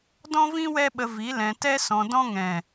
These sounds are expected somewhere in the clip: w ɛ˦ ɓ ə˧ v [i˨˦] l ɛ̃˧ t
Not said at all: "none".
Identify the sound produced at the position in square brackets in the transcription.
i˨˦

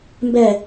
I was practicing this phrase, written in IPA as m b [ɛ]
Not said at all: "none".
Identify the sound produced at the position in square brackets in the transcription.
ɛ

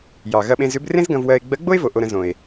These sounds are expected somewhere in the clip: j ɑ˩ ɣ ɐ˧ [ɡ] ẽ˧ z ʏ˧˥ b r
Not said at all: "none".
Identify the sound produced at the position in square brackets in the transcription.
ɓ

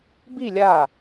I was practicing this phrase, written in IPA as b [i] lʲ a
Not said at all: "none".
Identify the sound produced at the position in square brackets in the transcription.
i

